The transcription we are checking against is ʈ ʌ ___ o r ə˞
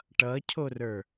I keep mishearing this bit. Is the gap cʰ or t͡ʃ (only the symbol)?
cʰ